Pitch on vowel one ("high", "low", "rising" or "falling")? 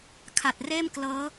low